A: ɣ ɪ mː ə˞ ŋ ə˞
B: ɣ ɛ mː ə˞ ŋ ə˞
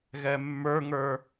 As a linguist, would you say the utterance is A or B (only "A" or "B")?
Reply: B